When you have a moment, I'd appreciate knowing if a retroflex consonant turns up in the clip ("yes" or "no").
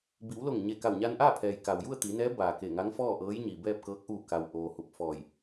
no